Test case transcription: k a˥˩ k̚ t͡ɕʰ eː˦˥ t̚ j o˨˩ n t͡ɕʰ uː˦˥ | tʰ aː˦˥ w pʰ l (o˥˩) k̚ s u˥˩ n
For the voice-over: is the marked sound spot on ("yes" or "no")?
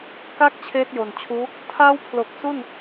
no